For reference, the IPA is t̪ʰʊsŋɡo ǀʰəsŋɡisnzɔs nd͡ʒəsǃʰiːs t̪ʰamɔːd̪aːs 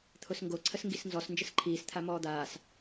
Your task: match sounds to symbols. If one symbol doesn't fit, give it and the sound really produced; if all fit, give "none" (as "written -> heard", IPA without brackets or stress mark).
none